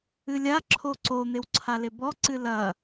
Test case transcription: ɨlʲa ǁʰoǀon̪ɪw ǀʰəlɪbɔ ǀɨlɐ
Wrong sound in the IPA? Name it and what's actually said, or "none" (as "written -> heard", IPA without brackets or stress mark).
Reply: ə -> a